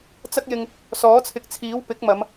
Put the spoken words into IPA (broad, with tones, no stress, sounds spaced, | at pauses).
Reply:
t͡s ɐ˥ k̚ j ɪ˧ ŋ | s ɔː˨˥ t͡sʰ ɪ˨ k̚ t͡sʰ iː˨˥ w p ɪ˨˥ k̚ m ɐ˨˧ m